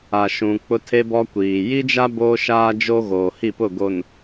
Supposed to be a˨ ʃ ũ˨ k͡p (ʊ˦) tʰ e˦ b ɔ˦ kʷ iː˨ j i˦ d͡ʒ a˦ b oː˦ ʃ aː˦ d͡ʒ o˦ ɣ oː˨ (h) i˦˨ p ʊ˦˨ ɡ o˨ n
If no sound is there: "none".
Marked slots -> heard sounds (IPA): ʊ˦, h

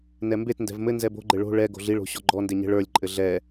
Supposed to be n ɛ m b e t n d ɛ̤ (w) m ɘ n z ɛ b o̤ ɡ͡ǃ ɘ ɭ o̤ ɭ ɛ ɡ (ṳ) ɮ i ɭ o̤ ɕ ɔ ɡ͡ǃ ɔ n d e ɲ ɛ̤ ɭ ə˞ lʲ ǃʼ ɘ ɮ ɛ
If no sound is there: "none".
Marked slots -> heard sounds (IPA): v, o̤

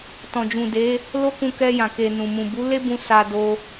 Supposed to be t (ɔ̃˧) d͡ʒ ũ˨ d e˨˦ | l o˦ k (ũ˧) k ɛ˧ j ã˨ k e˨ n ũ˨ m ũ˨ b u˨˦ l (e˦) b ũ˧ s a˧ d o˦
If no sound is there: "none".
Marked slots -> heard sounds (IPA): ɔ̃˨, ũ˧, e˦

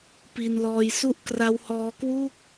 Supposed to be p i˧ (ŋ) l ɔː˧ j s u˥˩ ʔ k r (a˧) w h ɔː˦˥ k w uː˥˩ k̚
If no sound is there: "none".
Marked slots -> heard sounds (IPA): n, a˦˥

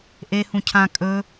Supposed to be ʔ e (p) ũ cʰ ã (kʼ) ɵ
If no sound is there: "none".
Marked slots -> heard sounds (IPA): h, kʼ

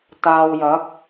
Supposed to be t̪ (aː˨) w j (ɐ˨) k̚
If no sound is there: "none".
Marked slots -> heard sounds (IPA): aː˨, ɐ˨˥

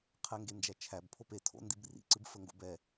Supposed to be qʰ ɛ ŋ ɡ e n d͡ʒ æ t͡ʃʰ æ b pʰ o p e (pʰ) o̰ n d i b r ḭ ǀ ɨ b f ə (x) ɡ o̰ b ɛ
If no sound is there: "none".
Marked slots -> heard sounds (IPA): tʰ, ŋ

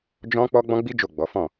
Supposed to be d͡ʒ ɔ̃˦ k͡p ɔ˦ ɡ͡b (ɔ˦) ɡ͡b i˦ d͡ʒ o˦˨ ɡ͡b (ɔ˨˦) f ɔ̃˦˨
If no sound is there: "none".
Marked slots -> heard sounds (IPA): ɔ̃˦, ɔ˨˦

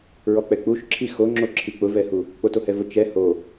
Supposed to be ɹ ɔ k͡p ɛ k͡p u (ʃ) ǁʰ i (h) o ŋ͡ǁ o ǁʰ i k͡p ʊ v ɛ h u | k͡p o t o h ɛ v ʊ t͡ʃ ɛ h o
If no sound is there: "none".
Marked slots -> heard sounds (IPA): ʃ, x

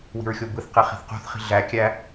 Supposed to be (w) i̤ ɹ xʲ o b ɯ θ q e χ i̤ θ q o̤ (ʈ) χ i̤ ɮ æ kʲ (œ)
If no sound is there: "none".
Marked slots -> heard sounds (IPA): w, θ, æ

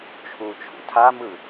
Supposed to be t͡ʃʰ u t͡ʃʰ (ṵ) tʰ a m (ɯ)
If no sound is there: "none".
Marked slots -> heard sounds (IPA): ṵ, ɯ

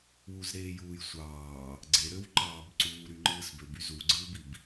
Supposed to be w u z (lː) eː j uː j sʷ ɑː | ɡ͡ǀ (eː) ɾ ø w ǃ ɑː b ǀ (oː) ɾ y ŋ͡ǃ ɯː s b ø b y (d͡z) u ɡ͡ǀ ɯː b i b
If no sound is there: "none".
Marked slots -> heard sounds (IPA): ɾ, e, uː, z

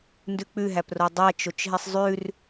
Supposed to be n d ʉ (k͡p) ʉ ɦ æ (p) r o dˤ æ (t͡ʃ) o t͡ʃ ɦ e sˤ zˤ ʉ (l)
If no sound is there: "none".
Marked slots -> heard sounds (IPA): k͡p, p, t͡ʃ, r

